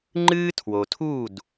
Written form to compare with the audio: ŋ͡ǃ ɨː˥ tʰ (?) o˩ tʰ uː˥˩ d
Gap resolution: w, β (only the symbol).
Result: w